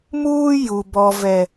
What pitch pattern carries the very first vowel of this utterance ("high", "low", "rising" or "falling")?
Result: high